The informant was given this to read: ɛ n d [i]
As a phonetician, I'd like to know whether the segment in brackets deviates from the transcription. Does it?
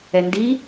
no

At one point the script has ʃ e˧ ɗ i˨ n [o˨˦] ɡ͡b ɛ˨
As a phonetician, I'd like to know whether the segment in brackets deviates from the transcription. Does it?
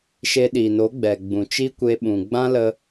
no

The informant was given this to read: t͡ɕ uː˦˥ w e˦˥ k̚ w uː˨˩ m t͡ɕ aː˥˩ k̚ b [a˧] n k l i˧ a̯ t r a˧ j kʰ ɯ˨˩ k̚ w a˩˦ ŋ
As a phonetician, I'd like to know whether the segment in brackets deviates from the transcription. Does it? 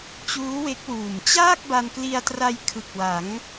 no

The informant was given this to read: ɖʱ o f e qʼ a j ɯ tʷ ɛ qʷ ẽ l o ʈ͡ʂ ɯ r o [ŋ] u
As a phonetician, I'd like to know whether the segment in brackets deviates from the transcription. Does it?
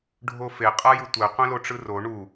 yes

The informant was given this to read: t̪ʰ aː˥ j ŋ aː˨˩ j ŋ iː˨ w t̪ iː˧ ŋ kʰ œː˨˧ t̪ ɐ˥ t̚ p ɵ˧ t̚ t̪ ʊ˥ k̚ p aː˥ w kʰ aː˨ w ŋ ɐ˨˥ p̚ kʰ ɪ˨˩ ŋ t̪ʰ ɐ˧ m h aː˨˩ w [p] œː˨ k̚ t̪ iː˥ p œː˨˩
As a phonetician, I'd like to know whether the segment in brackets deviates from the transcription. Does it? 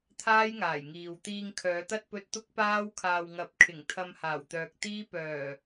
yes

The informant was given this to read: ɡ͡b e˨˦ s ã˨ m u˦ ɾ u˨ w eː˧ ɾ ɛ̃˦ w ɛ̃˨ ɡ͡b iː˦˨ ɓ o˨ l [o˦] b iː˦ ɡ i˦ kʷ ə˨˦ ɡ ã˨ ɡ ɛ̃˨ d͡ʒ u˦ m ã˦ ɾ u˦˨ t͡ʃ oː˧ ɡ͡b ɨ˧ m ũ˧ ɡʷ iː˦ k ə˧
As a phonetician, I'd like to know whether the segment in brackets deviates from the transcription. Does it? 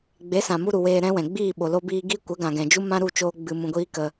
no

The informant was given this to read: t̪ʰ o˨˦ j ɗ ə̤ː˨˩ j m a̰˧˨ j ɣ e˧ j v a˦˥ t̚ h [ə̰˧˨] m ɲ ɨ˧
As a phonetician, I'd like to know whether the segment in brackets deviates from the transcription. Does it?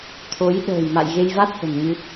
yes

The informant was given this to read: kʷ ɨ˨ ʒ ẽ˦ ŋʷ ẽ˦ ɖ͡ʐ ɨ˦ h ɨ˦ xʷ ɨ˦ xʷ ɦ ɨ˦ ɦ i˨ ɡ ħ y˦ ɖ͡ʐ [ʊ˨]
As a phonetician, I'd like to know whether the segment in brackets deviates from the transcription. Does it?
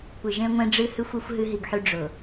no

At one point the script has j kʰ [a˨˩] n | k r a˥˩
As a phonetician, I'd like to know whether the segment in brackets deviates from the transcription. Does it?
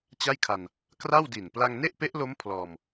yes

